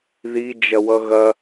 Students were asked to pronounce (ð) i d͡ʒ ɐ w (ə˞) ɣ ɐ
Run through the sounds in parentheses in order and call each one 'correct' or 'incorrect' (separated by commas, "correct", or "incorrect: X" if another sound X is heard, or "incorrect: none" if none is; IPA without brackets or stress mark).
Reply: correct, incorrect: ʌ